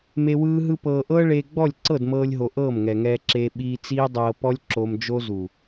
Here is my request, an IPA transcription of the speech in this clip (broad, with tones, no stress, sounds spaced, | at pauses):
m e˧ w ɯː˦ ɦ ɯ˦ p ɤː˧ ʔ ɤː˦ ɭ eː˧ ɡ͡b ɔ˦˨ lʲ ǀ ɤ˦˨ d m ɤː˧ lʲ ɦ o˨ ʔ ɤː˦˨ m ŋ ɛ˨ ŋ ɛː˧ ǁ eː˧ ɓ iː˧ t͡s iː˦ dˤ ɤː˧ p ɔ˦ lʲ ǁ o˧ m d͡ʒ o˦ z u˨